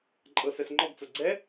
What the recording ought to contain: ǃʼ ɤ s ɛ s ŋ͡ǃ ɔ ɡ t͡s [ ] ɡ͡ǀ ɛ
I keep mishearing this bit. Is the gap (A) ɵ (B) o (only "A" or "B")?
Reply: B